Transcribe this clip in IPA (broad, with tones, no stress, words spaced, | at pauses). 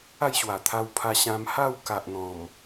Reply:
a˥˧jɕwa˨˩t̪ʰa˧w pʰa˧ɕã˧m ha˥˧wka˨ʔ n̪ɔ̃˨˩m